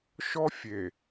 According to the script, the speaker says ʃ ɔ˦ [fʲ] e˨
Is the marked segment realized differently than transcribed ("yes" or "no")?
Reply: no